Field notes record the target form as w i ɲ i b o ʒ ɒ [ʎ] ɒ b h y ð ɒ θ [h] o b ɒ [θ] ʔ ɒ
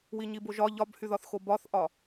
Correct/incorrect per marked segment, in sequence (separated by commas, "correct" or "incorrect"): correct, incorrect, correct